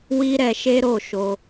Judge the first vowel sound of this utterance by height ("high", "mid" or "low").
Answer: high